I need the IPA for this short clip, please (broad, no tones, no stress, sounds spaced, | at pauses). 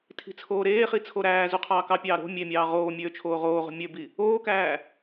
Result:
tʰ i̤ t͡sʰ oː ɾ eː χ i t͡sʰ o ɾ æː z u qʰ ɑː k ɑ pʲ ɑː ɾ o̤ mʲ e mʲ ɑː ʁ oː mʲ øː t͡ʃʰ oː ʁ oː ʁ o̤ mʲ ø b i | oː k æː